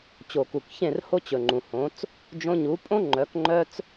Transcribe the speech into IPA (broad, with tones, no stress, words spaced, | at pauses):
t͡ɕo˨ku˨kçẽ˦˨rho˦ t͡ɕɵ˨ŋ͡ǃũ˨hõ˨˦t͡s | d͡ʒõ˧ɲu˨˦pʼõ˦ ŋ͡ǃœ˨˦kŋ͡ǃœ˦t͡s